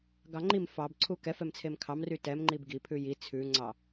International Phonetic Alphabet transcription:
ɡɑŋ͡ǃim fɑbǀʰu kɛfɛmt͡sʰem kʰɑmry tɛmŋ͡ǃib ɡipʰʉ ji t͡sʰʉŋ͡ǀɑ

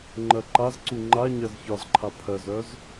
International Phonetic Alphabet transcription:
ŋ͡ǃɜǃazǀu ŋ͡ǃa ɲɜzçɒzǃʰa pʰɜzœz

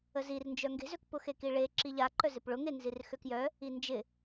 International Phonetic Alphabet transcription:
əzirnd͡ʒœ ŋɡe̤zøkpʊxe kiɭe ǁiʎaǃœ zɪpɭʊ ŋenzirxøkjœ | ind͡ʒɪ

